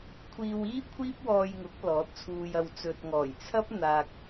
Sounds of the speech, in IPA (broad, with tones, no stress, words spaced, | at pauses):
kʷʰiː˧wiː˥ kʷʰiː˥p̚wɔː˧jŋʊ˨˥k̚ lɔː˨˥t̚t͡sʰuː˧jɐ˧w t͡sɵ˨t̚ŋɔː˨˩jt͡sʰɐ˥p̚ n̪aː˨k̚